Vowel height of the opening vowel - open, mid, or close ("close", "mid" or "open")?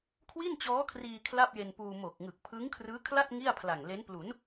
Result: close